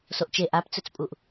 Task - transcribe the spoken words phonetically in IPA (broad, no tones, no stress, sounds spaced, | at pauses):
s o ʔ t͡ʃ e ʔ a p t͡s ɵ t͡s pʼ u ʔ